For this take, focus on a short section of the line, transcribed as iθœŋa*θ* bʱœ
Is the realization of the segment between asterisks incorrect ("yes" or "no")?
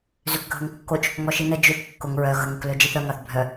no